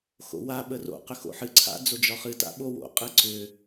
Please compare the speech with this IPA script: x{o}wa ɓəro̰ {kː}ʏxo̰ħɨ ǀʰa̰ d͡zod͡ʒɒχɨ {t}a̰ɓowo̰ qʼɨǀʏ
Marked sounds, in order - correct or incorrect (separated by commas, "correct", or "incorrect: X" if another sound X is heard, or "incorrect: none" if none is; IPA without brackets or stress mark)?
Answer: incorrect: o̰, incorrect: q, correct